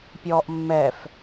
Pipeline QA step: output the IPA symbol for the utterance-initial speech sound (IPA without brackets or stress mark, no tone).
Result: pʲ